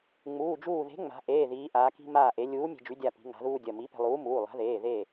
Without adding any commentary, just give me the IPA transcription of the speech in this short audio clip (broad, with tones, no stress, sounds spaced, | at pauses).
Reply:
ŋ͡m uː˩˧˩ d͡ʒ uː˧˩ ð e̤˨˥ ŋ͡m a̤˩˧ ʔ eː˩˧˩ ð iː˩˧ ʔ aː˩˧ k i̤˧ m aː˧˩ ʔ e˩˧ lʲ uː˨˥ mʲ e̤˧ d͡ʒ y˨˥ dʲ a˧˩ p i̤˩˧ ŋ a̤˩˧ ð uː˧ dʲ ɐ˩˧˩ m i˨˥ p e̤˧ lˠ uː˨˥ m uː˩˧˩ lˠ a̤˨˥ ð eː˩˧˩ ð e˧˩